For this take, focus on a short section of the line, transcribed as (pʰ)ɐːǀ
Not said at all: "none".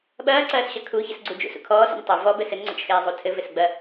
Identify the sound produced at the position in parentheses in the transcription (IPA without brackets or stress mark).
ɓ